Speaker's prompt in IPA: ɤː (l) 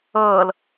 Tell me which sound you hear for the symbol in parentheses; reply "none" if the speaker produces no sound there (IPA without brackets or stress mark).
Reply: l